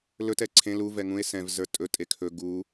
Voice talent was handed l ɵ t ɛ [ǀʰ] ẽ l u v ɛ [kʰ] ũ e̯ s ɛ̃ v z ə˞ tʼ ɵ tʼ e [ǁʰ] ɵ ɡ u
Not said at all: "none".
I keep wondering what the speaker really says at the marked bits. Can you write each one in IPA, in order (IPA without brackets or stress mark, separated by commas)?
ǀʰ, ŋ, kʰ